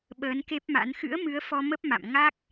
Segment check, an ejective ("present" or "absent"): absent